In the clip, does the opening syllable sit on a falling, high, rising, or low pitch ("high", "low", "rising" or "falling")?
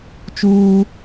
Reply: high